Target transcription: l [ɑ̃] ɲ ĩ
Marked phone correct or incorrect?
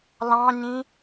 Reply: correct